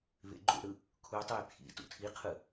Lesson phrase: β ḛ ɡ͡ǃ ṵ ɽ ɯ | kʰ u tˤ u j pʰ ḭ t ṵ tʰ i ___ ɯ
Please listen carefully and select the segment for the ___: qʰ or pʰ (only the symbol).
qʰ